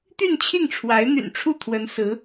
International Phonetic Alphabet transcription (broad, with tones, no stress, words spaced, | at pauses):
t̪y˥˧nt͡ɕʰi˥˩ŋʈ͡ʂʰwa˧˥ɪ̯ n̪y̰˨˩nʈ͡ʂʰu˥˩t̪ʰwə˧˥n sɹ̩˧˥